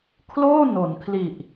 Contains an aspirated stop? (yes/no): yes